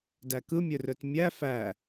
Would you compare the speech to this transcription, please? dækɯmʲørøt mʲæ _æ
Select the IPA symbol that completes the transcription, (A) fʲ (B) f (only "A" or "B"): B